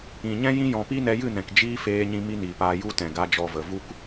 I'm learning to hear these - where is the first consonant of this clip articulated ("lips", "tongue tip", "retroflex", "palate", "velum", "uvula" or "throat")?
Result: palate